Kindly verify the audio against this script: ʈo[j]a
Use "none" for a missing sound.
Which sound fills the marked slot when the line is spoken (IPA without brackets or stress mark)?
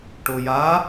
j